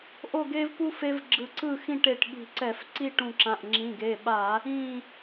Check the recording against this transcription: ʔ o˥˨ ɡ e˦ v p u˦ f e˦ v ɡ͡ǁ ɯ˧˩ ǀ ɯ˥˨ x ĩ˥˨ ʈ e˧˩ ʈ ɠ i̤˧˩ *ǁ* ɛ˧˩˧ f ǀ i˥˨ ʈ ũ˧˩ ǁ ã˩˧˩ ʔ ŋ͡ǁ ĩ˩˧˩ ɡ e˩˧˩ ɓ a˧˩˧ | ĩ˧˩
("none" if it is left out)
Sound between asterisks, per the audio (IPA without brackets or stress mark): ǀ